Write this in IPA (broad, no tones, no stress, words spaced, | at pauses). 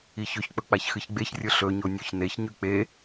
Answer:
içɵçk͡pɵ k͡paçxɨçɡ͡beçrʲɵ ɬɵɲo nʲʉçneçɲʉ k͡pe